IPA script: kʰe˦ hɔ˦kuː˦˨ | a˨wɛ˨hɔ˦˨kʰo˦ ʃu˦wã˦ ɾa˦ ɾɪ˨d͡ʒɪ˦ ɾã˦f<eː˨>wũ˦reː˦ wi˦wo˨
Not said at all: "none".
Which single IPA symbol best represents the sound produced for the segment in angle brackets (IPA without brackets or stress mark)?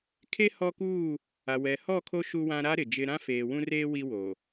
eː˨